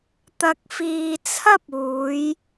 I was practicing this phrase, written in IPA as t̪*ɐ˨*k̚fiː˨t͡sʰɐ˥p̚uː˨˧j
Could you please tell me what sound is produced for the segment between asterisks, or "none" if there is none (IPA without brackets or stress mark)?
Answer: ɐ˨